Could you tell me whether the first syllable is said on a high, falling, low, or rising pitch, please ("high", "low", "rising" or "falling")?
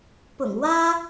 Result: low